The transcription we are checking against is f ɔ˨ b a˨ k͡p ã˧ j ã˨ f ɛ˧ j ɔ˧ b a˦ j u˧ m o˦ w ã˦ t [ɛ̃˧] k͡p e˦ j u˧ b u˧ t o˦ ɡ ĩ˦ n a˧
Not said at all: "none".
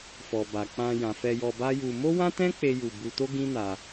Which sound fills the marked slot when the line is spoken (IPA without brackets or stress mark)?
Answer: ɛ̃˦